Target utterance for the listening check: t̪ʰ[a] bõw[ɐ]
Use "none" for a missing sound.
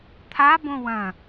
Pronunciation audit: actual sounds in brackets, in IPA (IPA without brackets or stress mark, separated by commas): a, ɐ̃